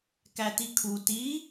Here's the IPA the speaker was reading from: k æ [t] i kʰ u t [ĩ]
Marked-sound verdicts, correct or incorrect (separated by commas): correct, incorrect